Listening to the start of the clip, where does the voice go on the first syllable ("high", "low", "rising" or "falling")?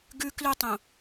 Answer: high